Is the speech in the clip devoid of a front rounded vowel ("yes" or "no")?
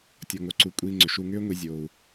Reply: no